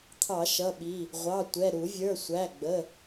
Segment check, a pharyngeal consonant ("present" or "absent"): absent